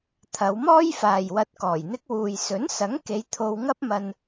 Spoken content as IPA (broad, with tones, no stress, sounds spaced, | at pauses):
t̪ʰ ɐ˨˧ w m ɔː˥ j f aː˨ j w ɐ˧ t̚ k ɔː˨˩ j n̪ ɪ˥ k̚ w uː˨ j s ɵ˨˥ n s ɐ˨˥ ŋ k e˨˧ j t̪ʰ o˧ w ŋ ɐ˥ p̚ m ɐ˧ n